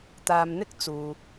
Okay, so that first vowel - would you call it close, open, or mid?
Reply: open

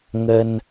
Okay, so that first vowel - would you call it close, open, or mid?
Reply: mid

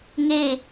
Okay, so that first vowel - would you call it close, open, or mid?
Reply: mid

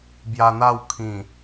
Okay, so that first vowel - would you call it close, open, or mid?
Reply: open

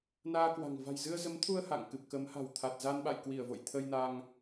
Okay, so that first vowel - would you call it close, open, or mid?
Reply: open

